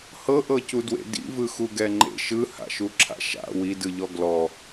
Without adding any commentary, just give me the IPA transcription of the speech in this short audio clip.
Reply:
h ɤ ʔ ɤ c u d w ḛ d ḭ v ɯ x u ɡ ɛ ŋ͡ǃ ḛ ʃ ɯ h a̰ ʃ u ǁʰ a̰ ʃ a̰ w i d ɯ ʎ ɔ ɡ l ɔ

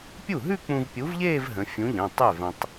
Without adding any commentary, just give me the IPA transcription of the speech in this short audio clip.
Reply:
pʲ u˥˩ ɦ ʉ˥˧ k͡p ũ˧ v pʲ u˨˥ v ʎ eː˥˧ v ɦ ə̃˨˥ fʲ ũ˨˥ ʎ ə̃˩˧˩ tˤ ʉ˥˩ v ə̃˧ tˤ

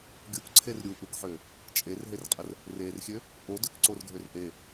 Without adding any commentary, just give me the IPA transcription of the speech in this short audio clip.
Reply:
ɡʲ u k ǀʰ e r ɾʲ u ʔ u k ħ ø | t͡ʃʼ e r ɦ e r qʼ ə r | r e r xʲ ø | ʔ o d ø k ǀ o r ɡʱ ø r ʔ e

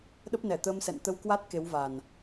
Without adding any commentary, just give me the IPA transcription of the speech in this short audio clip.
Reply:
ɗ ə˦˥ p̚ n ɛ˧˩ t̪ əː˧ m s ɛ̰˧˨ n t̪ ə˧ w k w a˦˥ t̚ k e˨˦ w v a˨˩ n

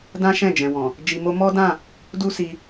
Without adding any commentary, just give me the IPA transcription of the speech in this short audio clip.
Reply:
d ã˦ ʃ ɛ̃˦˨ d͡ʒ ɛ̃˨ w ɔ̃˨ | d͡ʒ i˧ m o˦ m ɔ˦ d ã˦˨ | d u˦ s i˧

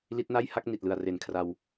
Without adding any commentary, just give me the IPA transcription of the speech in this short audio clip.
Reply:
l i˦˥ t̚ n a˥˩ j h a˥˩ k̚ n i˨˩ t̚ l ɯ˨˩ a̯ r e˨˩ n kʰ r a˧ w

